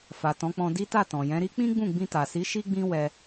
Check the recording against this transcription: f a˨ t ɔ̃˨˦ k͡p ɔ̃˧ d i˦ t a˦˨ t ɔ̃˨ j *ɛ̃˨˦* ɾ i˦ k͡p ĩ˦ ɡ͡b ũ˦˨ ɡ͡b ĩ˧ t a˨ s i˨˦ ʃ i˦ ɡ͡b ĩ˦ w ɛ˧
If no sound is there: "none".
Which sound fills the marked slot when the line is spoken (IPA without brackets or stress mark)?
ɛ̃˨˦